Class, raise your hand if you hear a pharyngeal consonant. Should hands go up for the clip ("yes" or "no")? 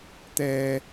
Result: no